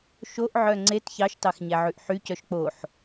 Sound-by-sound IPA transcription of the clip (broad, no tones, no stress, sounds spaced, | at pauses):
ʃ o ʔ ʕ œ ŋ͡ǀ e t ç ɑ ʃ t ɑ x ɲ æ ʕ ʉ ʔ ħ y c œ ʃ k͡p o ħ